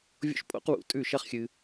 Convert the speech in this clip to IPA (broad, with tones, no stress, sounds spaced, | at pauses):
vʲ o̰˦ ʃ pʼ o̰˦ q w ṵ˧ tʼ ʉ˦˨ ʃ ɐ˦ χ xʲ ɨ˧